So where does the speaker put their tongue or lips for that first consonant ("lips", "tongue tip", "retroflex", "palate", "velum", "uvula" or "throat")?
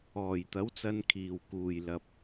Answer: palate